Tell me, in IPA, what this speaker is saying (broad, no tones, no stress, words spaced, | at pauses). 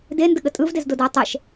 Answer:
dendəɠə tʼɯvdezdodaɐ̯ tˤɛʃ